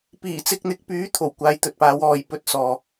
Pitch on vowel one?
low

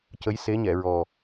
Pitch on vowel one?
rising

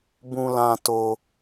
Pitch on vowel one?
high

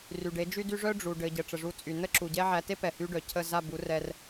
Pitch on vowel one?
low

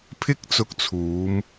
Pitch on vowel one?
high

